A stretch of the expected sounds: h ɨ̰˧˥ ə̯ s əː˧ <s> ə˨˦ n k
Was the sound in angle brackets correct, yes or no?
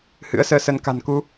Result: yes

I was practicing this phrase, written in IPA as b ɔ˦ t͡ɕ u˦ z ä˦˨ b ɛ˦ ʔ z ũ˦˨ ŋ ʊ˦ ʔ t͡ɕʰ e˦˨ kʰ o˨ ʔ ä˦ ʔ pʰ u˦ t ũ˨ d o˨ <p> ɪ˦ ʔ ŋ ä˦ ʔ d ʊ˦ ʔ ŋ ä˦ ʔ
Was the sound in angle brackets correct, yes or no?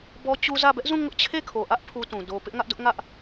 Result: yes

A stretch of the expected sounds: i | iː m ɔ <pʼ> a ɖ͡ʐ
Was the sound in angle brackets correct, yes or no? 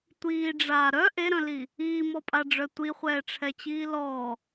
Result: yes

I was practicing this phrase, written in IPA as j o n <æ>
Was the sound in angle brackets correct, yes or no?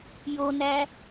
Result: yes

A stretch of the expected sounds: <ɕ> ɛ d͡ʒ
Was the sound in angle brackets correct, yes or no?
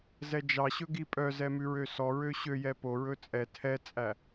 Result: no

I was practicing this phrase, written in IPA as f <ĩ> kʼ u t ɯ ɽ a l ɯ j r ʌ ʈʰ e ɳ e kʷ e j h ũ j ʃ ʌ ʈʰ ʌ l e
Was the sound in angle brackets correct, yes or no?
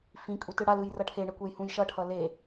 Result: yes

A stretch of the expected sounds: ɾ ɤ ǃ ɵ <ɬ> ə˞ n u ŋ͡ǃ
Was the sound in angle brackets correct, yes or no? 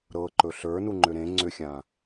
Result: yes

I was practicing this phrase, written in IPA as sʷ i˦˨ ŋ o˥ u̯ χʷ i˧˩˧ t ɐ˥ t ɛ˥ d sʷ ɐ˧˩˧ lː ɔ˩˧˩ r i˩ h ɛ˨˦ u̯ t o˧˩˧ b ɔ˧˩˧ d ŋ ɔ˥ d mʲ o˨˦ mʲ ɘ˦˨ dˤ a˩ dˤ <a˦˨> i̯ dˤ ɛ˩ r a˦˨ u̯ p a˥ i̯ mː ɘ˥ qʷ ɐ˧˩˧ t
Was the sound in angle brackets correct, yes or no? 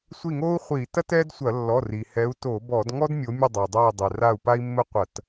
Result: yes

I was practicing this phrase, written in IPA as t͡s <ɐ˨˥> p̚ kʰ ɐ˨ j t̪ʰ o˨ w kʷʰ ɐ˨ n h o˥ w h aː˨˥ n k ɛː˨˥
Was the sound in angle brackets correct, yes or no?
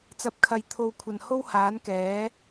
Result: yes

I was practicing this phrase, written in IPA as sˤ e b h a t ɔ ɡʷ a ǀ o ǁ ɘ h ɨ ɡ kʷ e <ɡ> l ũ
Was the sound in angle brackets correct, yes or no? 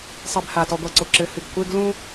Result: yes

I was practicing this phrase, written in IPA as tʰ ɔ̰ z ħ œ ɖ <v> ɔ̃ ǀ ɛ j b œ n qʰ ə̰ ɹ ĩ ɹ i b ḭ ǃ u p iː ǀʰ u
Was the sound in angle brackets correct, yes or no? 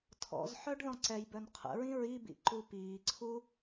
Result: no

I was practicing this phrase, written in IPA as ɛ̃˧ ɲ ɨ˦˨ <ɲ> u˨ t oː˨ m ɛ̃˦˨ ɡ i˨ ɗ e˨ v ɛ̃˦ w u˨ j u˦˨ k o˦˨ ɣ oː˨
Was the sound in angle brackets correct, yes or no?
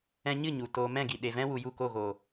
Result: yes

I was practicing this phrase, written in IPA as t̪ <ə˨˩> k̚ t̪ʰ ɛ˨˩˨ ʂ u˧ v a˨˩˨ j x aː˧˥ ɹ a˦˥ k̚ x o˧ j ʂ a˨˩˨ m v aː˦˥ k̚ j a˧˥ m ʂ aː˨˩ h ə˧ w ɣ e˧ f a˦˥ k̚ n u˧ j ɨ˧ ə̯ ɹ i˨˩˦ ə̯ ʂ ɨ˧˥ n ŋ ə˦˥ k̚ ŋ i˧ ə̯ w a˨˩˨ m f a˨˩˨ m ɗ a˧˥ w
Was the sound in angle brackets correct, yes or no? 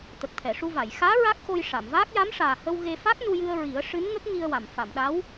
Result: yes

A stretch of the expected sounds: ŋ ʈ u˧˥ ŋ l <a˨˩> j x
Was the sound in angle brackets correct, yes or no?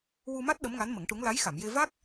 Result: no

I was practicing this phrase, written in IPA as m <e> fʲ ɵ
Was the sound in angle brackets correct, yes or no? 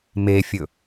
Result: yes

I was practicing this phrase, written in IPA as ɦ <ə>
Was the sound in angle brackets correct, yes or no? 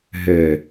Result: no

